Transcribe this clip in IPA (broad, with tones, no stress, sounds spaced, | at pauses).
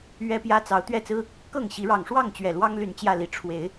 ɥ ɛ˦ p j ä˦ t͡s ɑ˨˦ ʊ̯ t̪ ɥ ɛ˥˨ t͡s ɹ̩˦ | k ɤ˥˨ ŋ ɕ i˨˦ ɻ ɑ˨˩ ŋ ʂ w ɑ˥˨ ŋ t͡ɕ ɥ ɛ˨˩ l w ɑ˦ ŋ l y˨˩ n t͡ɕ j ä˥˨ l i˨˩ ʈ͡ʂʰ w e˨˦ ɪ̯